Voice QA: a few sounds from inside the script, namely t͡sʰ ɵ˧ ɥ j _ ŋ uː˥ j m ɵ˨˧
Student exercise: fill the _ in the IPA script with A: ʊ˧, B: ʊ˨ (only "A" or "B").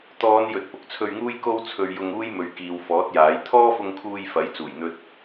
A